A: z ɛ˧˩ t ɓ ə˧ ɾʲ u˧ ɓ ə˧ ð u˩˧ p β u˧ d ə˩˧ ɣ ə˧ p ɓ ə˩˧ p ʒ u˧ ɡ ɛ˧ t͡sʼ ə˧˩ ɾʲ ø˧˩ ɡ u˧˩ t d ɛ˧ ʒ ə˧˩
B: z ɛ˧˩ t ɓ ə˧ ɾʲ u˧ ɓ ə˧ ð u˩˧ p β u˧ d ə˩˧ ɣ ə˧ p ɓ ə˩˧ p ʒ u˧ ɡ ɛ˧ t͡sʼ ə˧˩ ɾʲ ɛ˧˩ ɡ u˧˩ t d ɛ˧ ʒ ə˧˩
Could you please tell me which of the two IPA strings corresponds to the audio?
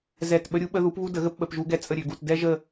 A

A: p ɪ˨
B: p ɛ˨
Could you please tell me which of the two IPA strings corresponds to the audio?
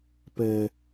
B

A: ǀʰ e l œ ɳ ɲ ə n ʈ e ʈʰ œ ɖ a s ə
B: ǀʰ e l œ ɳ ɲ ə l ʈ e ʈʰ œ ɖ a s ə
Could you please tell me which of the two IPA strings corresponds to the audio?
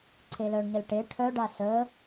B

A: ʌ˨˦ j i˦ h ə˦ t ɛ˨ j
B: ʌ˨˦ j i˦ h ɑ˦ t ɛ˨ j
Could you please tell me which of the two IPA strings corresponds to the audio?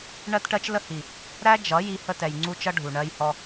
A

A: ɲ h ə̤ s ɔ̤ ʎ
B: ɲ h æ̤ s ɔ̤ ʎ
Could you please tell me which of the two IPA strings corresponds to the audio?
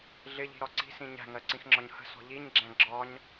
A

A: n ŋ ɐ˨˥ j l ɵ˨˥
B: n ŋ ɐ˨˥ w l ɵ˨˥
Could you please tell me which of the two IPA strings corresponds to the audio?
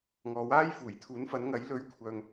A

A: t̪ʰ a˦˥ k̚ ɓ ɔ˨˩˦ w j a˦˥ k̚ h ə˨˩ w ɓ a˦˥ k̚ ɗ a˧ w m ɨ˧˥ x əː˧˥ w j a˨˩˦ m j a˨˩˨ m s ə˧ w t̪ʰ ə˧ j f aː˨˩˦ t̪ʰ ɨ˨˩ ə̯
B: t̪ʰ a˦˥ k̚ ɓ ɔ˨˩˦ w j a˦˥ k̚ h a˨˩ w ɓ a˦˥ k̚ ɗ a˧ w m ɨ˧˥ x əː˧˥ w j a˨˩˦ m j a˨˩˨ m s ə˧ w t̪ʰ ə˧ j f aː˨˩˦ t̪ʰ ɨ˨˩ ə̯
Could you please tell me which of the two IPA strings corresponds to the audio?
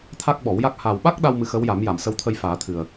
B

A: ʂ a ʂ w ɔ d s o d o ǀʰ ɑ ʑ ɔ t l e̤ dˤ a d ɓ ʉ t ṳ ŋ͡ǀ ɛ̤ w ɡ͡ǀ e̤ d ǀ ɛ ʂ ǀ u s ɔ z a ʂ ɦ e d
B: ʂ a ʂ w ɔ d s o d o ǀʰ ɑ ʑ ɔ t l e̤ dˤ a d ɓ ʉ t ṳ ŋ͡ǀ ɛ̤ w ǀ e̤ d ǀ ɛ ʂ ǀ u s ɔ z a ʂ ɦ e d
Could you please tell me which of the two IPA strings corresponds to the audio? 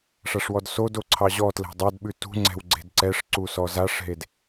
A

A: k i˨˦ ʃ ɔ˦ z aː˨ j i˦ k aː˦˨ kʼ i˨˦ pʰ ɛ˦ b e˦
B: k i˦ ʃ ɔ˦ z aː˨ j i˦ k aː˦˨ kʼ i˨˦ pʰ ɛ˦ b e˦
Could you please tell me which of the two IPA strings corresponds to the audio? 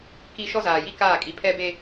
B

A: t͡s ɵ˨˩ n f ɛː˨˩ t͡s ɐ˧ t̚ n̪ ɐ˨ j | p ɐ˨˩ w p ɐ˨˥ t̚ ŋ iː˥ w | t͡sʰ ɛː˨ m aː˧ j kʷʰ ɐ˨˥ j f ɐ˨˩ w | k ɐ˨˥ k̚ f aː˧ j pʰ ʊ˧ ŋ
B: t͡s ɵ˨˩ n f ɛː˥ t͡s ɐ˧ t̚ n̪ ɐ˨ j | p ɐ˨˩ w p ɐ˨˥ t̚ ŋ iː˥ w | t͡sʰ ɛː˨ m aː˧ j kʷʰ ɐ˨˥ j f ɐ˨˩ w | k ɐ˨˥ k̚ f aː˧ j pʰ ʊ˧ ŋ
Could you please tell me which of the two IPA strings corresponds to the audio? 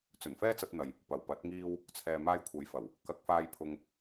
B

